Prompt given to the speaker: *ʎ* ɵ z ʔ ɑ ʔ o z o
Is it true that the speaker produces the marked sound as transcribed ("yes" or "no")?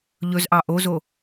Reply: yes